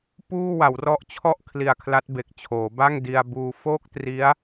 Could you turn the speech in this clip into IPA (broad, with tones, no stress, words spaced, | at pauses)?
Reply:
puː˥˩wa˩˦wrɔ˦˥ʔt͡ɕʰɔ˥˩ʔ kʰli˧a̯kʰla˦˥t̚be˨˩k̚t͡ɕʰoː˩˦ ba˥˩ŋ di˧a̯buː˧ fo˥˩k̚tri˦˥a̯